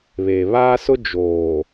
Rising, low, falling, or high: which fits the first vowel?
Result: low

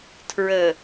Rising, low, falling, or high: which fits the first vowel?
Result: low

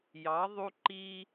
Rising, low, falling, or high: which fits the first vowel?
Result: rising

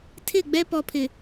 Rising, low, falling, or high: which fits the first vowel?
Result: falling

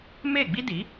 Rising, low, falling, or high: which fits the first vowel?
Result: falling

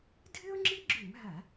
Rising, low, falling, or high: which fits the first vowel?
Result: high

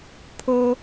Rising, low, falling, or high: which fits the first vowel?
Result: high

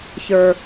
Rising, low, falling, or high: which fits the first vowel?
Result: low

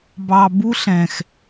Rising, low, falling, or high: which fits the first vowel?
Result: low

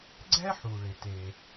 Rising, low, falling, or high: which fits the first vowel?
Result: high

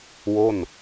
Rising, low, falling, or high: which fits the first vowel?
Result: falling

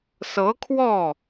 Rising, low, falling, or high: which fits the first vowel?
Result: rising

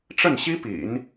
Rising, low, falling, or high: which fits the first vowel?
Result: falling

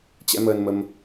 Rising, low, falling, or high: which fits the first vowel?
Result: rising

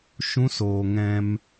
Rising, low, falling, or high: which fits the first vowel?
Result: high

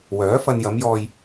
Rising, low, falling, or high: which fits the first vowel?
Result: rising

